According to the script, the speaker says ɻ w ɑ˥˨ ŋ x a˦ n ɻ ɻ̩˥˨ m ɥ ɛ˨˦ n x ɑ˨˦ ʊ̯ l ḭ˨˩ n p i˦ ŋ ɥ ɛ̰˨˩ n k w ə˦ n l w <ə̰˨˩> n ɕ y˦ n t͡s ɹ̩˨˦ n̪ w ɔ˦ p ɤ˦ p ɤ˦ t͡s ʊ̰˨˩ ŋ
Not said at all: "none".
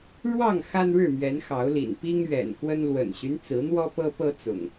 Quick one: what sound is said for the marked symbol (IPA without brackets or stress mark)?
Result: ə̰˨˩